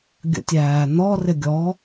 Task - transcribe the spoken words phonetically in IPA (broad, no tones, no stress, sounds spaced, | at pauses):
ɡʲ ə̰ tʲ æː n̪ ɔ r ɪ ɡʲ ɔ